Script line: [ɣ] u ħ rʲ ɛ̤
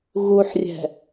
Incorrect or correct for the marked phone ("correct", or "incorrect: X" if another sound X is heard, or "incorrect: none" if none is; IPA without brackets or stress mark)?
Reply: correct